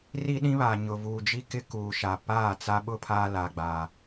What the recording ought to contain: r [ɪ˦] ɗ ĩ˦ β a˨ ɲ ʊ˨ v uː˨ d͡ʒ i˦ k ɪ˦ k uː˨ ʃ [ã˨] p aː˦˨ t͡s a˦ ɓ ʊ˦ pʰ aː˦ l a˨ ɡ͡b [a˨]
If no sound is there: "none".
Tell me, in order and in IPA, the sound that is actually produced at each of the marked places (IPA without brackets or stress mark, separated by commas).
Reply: i˦, a˨, aː˨